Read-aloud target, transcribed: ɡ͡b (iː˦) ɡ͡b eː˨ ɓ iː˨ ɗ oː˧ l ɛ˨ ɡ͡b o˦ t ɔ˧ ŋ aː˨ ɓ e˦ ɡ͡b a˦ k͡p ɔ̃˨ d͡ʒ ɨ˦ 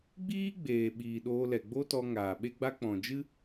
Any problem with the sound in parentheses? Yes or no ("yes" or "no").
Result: no